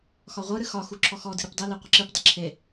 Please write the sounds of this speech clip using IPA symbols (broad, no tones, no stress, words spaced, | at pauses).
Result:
xɒʁʷɨɾɨ xɒxu ǁʰɔxɔdɨ ɾɯpdˤile qʷəǁɨpdˤə ǁʰe